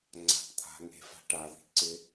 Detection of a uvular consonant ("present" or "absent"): absent